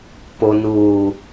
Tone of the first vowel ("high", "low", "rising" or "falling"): low